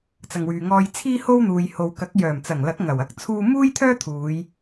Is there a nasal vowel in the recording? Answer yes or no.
no